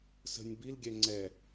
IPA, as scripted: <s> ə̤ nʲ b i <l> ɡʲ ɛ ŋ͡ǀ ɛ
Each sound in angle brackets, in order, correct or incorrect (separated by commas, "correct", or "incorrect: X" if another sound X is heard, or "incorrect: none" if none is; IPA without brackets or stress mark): correct, correct